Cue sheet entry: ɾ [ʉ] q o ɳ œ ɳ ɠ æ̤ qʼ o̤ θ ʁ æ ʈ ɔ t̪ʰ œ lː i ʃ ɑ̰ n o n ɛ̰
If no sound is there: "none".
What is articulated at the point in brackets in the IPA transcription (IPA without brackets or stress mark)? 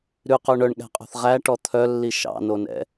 ʉ